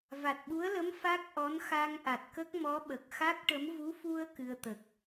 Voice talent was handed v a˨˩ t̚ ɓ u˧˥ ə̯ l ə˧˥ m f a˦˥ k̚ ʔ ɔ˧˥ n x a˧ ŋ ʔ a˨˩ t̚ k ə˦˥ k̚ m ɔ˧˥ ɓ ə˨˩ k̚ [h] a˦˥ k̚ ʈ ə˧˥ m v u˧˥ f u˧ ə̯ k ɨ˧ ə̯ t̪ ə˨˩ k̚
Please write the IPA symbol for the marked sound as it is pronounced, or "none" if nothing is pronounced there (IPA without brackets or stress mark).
x